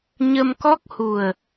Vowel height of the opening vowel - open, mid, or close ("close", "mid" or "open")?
mid